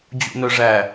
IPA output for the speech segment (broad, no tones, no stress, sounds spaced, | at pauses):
d͡ʑ ṵ n œ ʐ æ